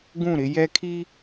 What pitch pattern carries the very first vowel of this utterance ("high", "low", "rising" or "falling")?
falling